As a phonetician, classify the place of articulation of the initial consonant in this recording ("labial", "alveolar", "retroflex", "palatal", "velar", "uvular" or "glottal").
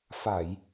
labial